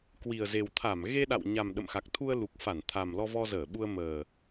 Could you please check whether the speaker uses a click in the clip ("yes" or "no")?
no